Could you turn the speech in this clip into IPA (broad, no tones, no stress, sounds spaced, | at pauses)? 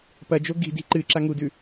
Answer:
p ɐ d͡ʒ o ɡ i̤ d i̤ ǃ ɨ ǁ a ŋ u d ʉ